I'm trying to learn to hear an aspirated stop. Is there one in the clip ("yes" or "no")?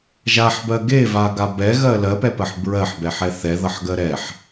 no